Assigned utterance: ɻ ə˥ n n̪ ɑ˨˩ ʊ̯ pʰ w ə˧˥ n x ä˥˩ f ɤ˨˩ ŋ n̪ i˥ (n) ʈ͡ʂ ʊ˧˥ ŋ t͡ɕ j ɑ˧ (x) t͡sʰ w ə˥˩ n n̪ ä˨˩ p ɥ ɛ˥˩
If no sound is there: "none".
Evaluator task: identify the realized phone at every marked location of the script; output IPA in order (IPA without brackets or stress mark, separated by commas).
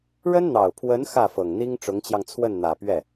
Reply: ŋ, ŋ